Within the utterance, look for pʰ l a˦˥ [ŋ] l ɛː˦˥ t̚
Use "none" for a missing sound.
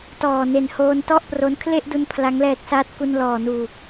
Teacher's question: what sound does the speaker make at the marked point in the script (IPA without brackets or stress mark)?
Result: ŋ